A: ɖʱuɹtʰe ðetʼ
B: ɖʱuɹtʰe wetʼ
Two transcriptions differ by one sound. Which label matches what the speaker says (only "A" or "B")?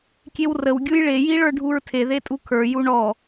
A